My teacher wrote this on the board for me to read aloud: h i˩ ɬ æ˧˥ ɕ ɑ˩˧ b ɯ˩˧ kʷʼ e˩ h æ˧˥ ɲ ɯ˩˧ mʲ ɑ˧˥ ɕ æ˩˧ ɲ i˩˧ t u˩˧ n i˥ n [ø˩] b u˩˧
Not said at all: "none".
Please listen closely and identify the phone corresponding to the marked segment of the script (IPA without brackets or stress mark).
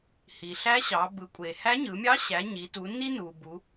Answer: u˩